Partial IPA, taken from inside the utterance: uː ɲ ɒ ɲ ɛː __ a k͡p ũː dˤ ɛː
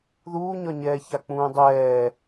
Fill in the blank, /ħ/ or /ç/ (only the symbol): ç